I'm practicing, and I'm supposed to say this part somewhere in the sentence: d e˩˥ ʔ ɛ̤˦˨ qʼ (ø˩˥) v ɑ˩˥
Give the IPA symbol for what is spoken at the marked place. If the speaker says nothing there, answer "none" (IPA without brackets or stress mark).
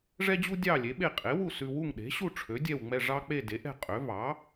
ø˩˥